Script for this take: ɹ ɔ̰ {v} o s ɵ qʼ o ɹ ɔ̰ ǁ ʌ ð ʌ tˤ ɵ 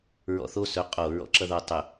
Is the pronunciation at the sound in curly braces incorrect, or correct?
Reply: incorrect